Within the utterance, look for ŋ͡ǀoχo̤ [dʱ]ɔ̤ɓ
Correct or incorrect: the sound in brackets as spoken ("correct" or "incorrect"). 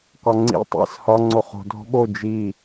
correct